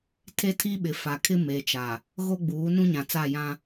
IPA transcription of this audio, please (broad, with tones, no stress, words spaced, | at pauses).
tʰe˦tʰi˦ɓɪ˨ fa˨kʰɪ˦me˨t͡ʃa˨ | ɣo˦ɡ͡buː˨˦ nũ˦ɲã˨t͡sa˦˨jã˦